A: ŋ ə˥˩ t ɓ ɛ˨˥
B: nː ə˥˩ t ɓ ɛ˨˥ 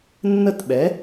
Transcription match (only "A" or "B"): B